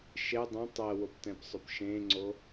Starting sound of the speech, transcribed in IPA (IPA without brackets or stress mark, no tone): ʃ